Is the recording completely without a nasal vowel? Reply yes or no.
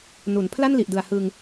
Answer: yes